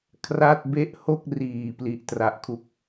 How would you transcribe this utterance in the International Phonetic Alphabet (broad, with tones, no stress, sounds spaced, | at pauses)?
kʰ r a˥˩ t̚ b e˥˩ ʔ h o˥˩ k̚ r iː˨˩ p l i˨˩ ʔ t r a˨˩ ʔ kʰ u˦˥ k̚